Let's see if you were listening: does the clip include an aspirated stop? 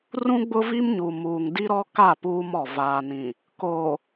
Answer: no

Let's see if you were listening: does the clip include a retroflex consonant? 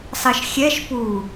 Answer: no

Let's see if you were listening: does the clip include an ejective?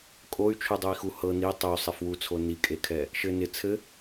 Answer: yes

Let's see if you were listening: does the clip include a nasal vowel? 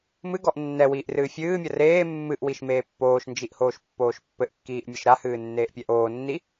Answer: no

